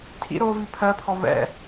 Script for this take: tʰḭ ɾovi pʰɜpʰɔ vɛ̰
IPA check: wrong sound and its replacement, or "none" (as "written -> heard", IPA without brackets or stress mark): none